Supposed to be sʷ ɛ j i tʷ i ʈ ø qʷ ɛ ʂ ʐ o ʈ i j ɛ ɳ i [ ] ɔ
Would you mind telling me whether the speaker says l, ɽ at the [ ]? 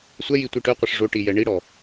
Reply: ɽ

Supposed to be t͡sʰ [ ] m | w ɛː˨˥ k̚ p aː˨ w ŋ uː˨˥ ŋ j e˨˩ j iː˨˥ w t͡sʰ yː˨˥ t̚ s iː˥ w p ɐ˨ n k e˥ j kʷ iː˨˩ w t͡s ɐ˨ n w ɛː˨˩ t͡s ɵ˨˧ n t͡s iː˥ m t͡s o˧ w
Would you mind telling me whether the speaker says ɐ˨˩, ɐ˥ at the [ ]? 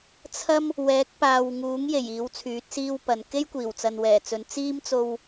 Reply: ɐ˥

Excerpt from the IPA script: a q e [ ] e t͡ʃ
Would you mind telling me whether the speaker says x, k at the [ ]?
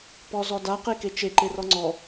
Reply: k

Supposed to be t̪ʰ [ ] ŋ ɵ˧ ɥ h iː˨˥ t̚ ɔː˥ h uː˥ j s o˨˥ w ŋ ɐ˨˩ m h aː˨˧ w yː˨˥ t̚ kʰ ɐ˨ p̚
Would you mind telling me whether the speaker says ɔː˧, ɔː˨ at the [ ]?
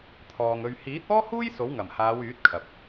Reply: ɔː˨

